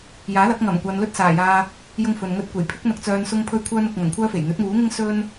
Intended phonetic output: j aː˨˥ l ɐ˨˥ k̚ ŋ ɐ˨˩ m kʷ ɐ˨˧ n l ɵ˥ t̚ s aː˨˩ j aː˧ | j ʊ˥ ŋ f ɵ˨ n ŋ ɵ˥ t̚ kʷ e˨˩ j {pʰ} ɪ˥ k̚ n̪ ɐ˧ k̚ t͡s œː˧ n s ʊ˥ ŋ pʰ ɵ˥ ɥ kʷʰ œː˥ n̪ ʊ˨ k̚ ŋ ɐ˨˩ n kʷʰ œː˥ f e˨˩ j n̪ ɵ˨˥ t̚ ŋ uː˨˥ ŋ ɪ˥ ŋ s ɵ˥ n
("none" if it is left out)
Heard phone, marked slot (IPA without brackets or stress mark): pʰ